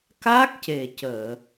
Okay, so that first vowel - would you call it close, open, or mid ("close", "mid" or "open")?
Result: open